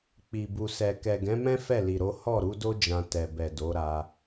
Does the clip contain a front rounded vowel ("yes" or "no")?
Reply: no